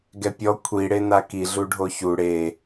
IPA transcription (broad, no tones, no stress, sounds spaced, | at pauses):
ɡ ɛ pʲ ɔ kʷʰ i ɽ e n a k i ɮ u ɖʱ o ç u ɽ e